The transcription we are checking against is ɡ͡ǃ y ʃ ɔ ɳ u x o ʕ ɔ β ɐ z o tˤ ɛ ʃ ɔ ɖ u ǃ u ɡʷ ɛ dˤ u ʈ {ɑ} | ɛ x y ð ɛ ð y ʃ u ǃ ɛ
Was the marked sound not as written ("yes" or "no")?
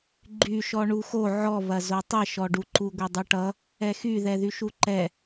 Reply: yes